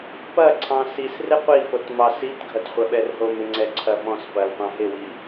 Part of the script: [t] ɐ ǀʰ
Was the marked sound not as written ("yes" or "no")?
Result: yes